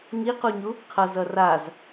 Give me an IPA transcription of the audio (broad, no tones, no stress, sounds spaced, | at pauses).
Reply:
ŋ i q u ɲ u | qʰ ʌ z ʌ r a z